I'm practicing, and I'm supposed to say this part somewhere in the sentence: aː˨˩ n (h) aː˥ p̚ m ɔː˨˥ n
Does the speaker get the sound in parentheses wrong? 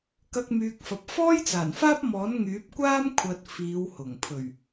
yes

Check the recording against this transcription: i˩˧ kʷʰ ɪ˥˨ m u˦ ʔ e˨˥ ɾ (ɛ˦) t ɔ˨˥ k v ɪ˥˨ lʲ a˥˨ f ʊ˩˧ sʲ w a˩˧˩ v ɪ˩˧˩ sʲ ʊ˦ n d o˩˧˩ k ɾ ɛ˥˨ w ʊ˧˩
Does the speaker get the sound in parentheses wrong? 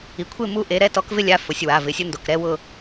no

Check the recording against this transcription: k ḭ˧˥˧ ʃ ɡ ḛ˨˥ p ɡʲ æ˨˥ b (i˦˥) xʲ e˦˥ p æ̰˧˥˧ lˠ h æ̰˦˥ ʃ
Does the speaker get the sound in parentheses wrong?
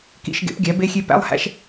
yes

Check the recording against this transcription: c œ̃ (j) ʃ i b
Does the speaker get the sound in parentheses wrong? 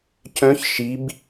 yes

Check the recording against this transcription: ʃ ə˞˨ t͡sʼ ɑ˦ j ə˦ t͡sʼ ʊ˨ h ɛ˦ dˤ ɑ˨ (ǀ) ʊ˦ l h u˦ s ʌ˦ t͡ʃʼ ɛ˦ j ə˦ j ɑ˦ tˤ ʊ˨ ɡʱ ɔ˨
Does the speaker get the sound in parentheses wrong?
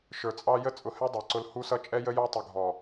no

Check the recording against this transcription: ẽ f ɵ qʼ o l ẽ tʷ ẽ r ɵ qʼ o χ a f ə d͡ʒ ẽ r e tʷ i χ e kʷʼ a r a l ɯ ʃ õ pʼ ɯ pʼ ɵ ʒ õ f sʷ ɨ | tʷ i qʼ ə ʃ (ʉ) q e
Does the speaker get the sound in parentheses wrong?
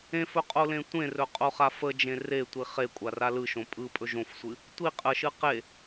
yes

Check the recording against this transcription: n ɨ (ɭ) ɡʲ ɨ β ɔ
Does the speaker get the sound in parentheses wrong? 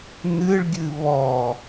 no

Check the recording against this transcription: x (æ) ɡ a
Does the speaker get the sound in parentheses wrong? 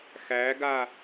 no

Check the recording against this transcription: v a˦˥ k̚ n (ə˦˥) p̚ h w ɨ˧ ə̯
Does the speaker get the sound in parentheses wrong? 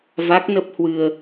no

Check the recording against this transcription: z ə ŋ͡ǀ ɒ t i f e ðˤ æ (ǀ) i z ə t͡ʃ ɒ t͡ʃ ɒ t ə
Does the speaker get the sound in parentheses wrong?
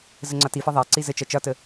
no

